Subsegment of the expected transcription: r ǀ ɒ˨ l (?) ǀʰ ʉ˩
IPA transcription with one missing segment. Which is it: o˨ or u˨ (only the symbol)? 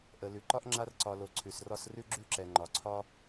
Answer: o˨